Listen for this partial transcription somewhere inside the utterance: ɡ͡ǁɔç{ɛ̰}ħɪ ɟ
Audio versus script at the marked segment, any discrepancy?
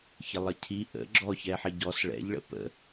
yes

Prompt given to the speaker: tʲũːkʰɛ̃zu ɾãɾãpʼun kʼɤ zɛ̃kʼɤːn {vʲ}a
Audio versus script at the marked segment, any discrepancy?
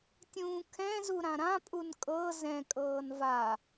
yes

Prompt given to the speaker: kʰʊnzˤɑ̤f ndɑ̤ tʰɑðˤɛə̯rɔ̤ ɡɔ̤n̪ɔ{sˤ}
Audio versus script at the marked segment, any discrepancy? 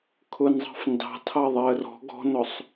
no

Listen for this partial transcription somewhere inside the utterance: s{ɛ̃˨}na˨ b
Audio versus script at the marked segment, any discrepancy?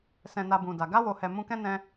no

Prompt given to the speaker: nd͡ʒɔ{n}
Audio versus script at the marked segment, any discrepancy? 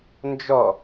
yes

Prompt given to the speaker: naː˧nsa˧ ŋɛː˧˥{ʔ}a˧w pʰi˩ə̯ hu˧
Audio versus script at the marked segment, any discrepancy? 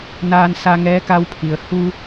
yes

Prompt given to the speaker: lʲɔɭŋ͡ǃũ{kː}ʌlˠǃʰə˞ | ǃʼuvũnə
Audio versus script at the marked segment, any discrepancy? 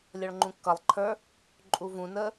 no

